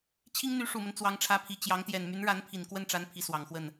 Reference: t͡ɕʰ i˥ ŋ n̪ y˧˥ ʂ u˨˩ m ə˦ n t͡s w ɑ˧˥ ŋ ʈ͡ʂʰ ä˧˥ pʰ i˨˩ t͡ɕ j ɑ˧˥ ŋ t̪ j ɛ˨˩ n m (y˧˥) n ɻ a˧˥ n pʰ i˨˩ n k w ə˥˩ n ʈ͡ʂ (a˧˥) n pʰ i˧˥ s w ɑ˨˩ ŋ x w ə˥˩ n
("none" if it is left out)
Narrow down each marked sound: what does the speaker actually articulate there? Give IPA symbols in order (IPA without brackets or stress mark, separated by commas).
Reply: y˧˥, a˧˥